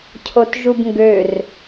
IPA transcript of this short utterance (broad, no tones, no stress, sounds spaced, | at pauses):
cʰ o t ʒ u b ŋ ɡ ø r